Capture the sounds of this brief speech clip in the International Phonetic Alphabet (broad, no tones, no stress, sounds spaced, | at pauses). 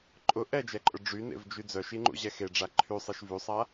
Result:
ǃʼ ʊ ʔ ɛ d͡ʒ ɛ ǃʼ ʊ ɖ͡ʐ y n ḛ v d͡ʒ y d͡z œ ʃ i ŋ͡ǃ ṵ ʑ ɛ x e ɖ͡ʐ a ǃʰ y sˤ e ʃ v y sˤ a